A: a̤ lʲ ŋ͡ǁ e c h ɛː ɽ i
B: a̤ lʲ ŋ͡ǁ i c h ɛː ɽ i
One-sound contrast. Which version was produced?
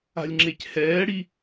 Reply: A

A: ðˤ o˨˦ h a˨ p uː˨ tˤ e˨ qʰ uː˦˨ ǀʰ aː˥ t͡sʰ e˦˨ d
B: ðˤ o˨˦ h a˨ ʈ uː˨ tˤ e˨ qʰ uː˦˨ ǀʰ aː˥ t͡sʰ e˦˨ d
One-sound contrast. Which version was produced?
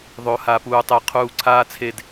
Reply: A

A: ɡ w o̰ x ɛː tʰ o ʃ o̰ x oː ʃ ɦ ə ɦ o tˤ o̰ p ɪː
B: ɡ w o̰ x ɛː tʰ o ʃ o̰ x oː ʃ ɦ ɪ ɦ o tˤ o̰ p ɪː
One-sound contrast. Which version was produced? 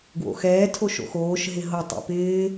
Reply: B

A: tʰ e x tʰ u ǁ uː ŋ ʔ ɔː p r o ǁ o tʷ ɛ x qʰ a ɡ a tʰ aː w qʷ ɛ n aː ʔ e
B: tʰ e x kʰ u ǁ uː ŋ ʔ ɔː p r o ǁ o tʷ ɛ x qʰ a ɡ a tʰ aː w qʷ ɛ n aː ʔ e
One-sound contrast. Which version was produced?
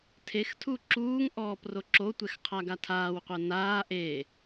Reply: A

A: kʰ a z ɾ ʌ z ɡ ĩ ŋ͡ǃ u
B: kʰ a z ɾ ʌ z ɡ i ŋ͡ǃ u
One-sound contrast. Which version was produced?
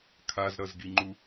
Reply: B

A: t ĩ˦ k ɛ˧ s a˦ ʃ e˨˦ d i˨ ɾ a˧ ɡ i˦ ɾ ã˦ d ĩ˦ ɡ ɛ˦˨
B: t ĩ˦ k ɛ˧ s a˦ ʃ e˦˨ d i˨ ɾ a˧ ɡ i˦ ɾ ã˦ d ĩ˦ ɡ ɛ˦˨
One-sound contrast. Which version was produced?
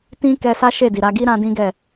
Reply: B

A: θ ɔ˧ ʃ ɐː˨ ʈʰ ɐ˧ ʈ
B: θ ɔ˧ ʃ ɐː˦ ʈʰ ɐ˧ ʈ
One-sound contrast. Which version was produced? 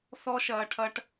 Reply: A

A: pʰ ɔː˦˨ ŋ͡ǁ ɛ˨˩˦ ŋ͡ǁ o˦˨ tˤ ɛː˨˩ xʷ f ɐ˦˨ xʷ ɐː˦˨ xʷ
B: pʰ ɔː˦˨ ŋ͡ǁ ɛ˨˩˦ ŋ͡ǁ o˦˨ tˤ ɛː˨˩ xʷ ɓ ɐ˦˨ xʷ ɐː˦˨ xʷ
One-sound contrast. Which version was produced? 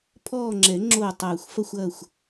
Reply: A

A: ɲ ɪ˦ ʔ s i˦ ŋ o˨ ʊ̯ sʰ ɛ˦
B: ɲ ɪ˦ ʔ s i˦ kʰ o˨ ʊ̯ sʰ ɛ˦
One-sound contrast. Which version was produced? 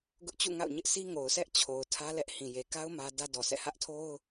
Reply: A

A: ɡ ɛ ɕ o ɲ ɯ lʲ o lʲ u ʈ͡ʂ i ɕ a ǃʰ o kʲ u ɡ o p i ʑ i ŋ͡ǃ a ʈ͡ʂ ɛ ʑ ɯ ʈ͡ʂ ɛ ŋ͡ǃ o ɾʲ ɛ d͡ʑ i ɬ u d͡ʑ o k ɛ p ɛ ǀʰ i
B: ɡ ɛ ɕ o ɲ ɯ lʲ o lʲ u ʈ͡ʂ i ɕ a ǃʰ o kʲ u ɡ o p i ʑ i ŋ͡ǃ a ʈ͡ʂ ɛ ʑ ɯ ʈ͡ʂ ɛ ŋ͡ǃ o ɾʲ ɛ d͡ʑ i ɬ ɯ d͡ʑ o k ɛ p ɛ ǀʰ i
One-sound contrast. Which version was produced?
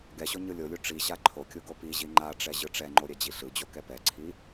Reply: B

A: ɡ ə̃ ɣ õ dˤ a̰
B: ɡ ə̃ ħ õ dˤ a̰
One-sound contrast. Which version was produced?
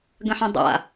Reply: B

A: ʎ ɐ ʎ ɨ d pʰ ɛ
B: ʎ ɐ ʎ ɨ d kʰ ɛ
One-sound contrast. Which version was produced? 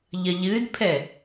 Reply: A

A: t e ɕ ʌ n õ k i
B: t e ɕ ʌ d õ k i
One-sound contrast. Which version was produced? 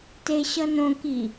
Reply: A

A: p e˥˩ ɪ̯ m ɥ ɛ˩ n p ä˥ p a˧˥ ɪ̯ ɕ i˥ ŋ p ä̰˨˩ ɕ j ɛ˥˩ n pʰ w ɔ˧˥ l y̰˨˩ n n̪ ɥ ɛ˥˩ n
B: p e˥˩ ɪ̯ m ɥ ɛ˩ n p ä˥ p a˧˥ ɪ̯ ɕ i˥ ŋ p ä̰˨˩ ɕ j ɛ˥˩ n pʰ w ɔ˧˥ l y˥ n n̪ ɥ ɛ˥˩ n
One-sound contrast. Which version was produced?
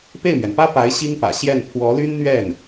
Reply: B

